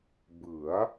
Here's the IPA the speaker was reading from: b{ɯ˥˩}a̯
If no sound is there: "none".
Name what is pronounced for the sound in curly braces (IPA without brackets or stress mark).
ɯ˩˦